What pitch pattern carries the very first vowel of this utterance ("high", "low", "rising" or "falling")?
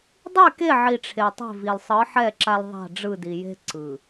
falling